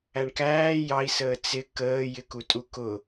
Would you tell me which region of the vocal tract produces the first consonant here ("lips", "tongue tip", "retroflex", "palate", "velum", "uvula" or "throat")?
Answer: retroflex